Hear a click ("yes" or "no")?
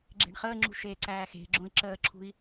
yes